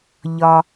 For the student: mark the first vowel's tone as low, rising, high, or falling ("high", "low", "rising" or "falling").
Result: low